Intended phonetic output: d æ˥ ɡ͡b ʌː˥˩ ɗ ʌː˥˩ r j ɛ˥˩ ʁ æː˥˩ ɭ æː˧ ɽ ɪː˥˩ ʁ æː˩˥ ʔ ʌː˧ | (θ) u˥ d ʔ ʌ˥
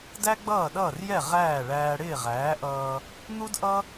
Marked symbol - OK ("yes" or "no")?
no